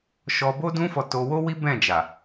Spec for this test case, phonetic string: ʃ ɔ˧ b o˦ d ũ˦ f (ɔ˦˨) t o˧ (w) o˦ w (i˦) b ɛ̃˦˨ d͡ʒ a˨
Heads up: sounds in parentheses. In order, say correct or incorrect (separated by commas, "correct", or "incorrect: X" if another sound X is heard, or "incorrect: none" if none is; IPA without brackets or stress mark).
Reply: incorrect: ɔ˧, correct, correct